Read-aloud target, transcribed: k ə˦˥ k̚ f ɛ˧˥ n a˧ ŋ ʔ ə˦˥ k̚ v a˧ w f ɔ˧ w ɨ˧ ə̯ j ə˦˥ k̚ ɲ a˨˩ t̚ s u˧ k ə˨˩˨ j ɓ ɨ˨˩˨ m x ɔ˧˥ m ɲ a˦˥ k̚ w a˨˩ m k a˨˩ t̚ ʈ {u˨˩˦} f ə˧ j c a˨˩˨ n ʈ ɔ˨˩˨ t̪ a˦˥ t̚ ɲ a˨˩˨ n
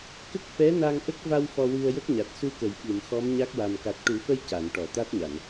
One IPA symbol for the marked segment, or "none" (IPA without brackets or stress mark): u˨˩˦